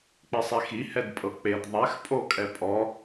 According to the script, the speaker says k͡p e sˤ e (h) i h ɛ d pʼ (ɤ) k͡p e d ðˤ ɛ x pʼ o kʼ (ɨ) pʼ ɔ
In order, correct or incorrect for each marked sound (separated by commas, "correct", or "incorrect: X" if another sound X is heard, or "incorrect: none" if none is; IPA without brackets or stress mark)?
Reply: incorrect: x, correct, incorrect: ɛ